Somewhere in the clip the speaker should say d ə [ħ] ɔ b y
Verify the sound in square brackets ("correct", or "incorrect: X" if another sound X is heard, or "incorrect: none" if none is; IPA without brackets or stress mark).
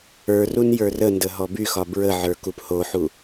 incorrect: ɦ